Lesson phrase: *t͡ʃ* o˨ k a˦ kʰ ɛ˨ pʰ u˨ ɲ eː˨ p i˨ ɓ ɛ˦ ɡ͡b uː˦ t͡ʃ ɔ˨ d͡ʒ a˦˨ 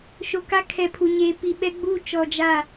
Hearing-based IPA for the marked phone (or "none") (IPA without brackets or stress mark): ʃ